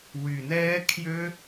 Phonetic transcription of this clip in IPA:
w y˨ n ɛː˦ kʰ j ø˦

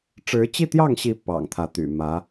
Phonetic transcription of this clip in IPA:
ʈ͡ʂ ɻ̩˧˥ t͡ɕ i˥˧ t̪ j ɑ˥˩ ŋ ɕ i˧˥ p ɑ̰˨˩ ŋ t̪ʰ ä˧˥ t̪ y̰˨˩ m ä˧˥

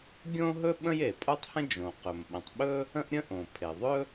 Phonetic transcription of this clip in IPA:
ɡʲ õ˥ ɦ ɵ˥ ɓ ə̃˥ j e˩ pʼ o˥ tˤ h ə̃˥ d͡ʒ õ˩ q ɵ˩ m ɓ ə̃˩ tˤ ɓ ɵ˥ | ə̃˥ ʔ ɾʲ ə̃˥ ʔ õ˩ pʰ e˩ ðˤ ɵ˥

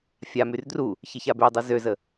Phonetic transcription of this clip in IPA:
fʲ a m y r d r u | ç e ç a b y dˤ y z ø z ə

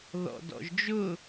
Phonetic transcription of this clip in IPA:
ð ɔ̰ d ɔ̰ ʒ d͡ʒ ʊ

